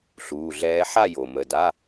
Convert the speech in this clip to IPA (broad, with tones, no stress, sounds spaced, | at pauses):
ɬ uː˩˧˩ ɮ ɛː˧˥ ħ a˥˨ j o˩ m ə˩˧˩ d a˧˥˧